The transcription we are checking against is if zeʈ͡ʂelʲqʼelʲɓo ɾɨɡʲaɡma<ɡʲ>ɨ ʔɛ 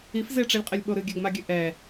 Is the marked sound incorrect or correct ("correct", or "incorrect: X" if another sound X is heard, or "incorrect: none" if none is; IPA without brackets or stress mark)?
correct